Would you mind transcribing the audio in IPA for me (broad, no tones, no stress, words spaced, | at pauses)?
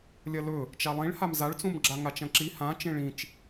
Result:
lʲɐlɵ | t͡ʃalˠĩɭham zaɭt͡sũmɡ͡ǁa ŋat͡ʃɐ̃ǁi hã t͡ʃẽɭĩt͡ʃ